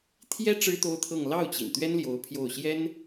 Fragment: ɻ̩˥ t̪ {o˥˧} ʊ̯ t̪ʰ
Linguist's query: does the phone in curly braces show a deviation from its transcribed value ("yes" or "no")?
yes